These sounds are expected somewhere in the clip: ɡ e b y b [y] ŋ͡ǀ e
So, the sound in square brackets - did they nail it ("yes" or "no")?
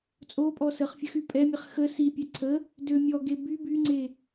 yes